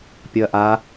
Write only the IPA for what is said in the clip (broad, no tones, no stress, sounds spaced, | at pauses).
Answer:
pʲ ɔ ɐ̯ ʔ a